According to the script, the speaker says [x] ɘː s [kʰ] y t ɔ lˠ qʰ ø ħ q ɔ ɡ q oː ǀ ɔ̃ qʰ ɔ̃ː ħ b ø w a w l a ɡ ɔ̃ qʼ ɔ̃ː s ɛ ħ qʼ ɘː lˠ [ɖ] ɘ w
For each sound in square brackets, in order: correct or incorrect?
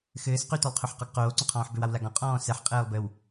correct, incorrect, incorrect

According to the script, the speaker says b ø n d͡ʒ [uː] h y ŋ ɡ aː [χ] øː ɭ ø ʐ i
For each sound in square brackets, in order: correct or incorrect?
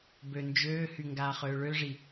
incorrect, correct

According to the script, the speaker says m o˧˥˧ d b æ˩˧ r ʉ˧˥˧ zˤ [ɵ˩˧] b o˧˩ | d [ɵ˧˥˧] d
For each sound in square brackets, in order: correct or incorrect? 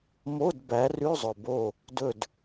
incorrect, incorrect

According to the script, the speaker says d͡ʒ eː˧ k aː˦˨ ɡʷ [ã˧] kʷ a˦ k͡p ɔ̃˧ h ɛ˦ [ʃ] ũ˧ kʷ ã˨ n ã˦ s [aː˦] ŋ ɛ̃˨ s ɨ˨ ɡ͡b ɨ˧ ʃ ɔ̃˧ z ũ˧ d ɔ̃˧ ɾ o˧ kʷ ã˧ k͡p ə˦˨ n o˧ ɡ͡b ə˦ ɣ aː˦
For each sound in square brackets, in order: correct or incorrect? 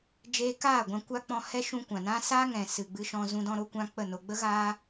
correct, correct, correct

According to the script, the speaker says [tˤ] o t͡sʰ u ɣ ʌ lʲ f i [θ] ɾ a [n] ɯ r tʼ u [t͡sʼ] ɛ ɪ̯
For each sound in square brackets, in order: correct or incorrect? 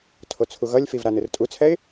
incorrect, incorrect, correct, incorrect

